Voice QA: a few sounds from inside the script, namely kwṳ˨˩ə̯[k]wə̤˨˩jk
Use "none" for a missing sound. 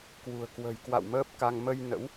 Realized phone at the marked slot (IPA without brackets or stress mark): k